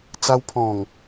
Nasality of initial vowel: oral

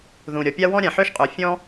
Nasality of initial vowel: nasal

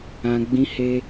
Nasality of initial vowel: nasal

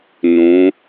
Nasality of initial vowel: nasal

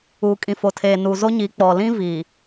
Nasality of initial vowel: oral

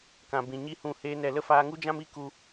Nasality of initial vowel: nasal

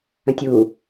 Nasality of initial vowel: nasal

